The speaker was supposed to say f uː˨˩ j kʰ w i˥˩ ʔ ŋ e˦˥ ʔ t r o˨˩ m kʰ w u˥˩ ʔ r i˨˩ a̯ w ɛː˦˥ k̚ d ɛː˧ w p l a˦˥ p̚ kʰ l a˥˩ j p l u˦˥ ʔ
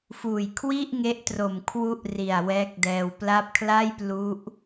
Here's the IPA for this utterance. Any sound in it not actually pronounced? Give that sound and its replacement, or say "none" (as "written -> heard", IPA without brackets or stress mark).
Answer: none